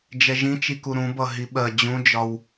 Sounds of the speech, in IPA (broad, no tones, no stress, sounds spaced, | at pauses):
d͡ʒ ɛ ʒ ĩ t͡ʃ i k u ɾ ũ b ʌ ɦ i ɓ ɜ d͡ʑ ũ d͡ʒ ɒ w